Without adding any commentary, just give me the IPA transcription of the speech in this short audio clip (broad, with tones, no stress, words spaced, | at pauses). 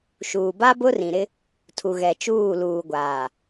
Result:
ʃuː˨ ba˦ bʊ˦rĩ˨ɾɪ˦ | tʰu˨ɣɛ˨t͡ʃuː˦˨luː˨ ɡʷaː˨